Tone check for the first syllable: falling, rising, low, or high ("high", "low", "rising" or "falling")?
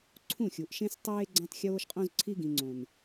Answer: falling